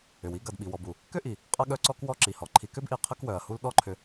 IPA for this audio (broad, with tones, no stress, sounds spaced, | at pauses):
ʏ˩ w i˦ ɡ ɐ˨ d ɓ i˨ w ɔ˨ b u˩ | k ʏ˥ ʔ i˩ | qʼ ɐ˥ ɠ œ˥ ǀ ɔ˥ k w ɔ˦ ǁ i˩ h ɔ˩ ǃʰ i˨ k ʏ˥ b ʔ i˨ qʰ ə˥ k w œ˩ ɐ̯ h u˦ l ɗ ɔ˦ ǃʰ ʏ˨